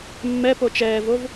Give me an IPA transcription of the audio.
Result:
mː ɛ p o t͡ʃ ɛː v o v

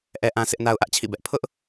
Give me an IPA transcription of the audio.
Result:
ʔ ɛ˦ ʔ ã˦ s ɪ˦ ʔ n a˦ ʊ̯ ʔ ä˦ ʔ t͡ɕʰ ḭ˦˨ b ɛ˦ ʔ pʰ ʊ˦ ʔ

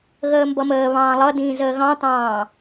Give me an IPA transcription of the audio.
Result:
ɣ əː m b ʌ m əː β ɑ̃ː lˠ ʌ d ĩː z əː ɣ ɑ̃ t ɑ̃ː

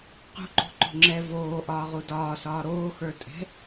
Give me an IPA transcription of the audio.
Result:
q ṳ ǃ o̤ ǃ o̤ ŋ͡ǁ ɛ v oː ʔ ɒː ʁ u d ɒː s ɒː ɾ oː x ə˞ tʼ ɛ̤

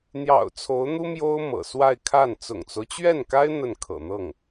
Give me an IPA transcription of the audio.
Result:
n̪ j ɑ̰˨˩ ʊ̯ t͡sʰ o˧˥ ʊ̯ n̪ u˥ m j o˥ ʊ̯ m ɤ̰˨˩ s w a˥˧ ɪ̯ kʰ a˥˩ n t͡s ʊ̰˨˩ ŋ t͡s o˦ ʊ̯ t͡ɕ ɥ ɛ˥˩ n k a˥ ɪ̯ n̪ ə˥˩ n kʰ ɤ̰˨˩ n̪ ɤ˥˩ ŋ

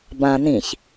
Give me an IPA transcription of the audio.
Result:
b ã n ĩ ç

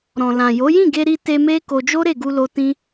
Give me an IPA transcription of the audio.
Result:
ɾ ɔ̃˨ l ã˨ j o˨˦ j ĩ˦˨ ɡ e˧ ɾ i˧ t e˧ m e˦ k o˧ d͡ʒ o˦ ɾ e˦˨ ɡ u˧ l o˧ t ĩ˦

